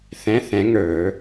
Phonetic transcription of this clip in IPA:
θ ɛ̃˧˥˧ θ ɛ̃˨˥ ŋ ə˞˨˩˦

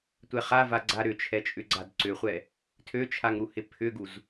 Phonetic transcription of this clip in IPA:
tʷ ɛ χ a v a ɡ͡ǀ a ɾ ʏ t͡ʃʰ ɛ t͡ʃʼ ʏ ɡ͡ǀ a d ǀ ʏ χʷ ɛ | tʰ ø t͡ʃʰ a ŋ ɾ u h ɪ pʰ ʏ ɡ u z

